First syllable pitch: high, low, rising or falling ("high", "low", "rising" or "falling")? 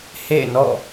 falling